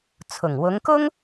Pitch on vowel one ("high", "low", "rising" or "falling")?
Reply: low